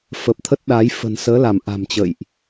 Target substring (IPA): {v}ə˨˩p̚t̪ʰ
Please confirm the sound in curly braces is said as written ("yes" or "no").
no